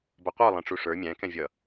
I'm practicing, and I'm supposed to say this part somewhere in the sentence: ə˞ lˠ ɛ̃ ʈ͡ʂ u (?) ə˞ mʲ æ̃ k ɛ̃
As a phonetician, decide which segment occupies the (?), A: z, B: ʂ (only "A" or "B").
B